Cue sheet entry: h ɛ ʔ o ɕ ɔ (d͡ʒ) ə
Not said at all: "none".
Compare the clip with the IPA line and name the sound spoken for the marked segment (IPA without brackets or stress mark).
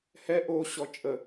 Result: t͡ʃʼ